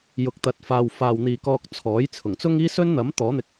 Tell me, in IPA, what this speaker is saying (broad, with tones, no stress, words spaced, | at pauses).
jʊ˨˥k̚t̪ɐ˨˥t̚faː˨w faː˨wn̪iː˨kɔː˧k̚ t͡sʰɔː˨˥j t͡sʰʊ˨˩ŋ t͡sʊ˥ŋiː˥ sɵ˥nn̪ɐ˨˥m t̪ɔː˨˥n̪ɪ˧k̚